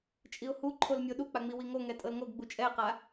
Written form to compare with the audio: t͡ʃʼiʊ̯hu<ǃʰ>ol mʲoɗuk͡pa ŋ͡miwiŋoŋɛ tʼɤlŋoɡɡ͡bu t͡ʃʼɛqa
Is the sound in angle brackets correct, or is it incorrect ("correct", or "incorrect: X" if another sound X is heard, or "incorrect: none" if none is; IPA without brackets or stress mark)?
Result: correct